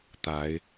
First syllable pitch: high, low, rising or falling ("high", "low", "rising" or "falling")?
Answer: rising